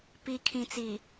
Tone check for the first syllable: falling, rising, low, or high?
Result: low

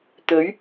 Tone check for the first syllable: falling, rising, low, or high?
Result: rising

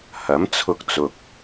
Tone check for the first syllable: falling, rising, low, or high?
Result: rising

